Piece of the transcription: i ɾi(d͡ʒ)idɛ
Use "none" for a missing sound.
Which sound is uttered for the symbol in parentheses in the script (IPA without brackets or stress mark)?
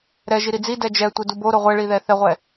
d͡z